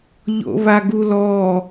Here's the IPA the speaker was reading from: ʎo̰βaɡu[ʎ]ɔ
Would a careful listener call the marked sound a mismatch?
yes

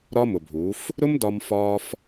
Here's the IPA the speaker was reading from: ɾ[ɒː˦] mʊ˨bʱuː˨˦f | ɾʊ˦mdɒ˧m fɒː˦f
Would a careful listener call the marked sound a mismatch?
yes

